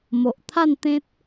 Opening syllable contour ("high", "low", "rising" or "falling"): low